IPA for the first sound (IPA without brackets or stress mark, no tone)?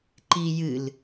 ǃ